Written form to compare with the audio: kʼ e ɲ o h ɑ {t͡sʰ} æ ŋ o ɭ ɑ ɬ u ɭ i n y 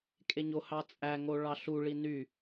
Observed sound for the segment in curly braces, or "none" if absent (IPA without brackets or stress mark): t͡sʼ